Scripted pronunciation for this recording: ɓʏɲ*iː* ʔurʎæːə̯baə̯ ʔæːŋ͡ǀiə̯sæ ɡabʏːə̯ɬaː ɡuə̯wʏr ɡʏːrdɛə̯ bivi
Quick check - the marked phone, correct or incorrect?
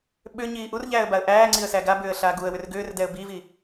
correct